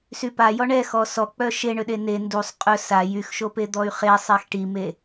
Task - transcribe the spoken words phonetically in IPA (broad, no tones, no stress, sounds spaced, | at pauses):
s y p a j ɔ ɳ ɛ x ɔ s ɔ k͡p œ ʃ e ɳ ø ɗ e n e n d u sˤ qʼ œ s a j y x ʃ o p e d̪ ɔ y̯ χ e sˤ ɛ x ʈ i m e